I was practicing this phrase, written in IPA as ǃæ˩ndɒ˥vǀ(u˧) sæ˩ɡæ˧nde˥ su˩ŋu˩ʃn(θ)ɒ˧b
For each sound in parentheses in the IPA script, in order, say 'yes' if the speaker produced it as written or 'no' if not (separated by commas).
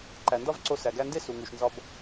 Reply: no, no